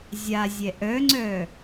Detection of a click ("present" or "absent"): present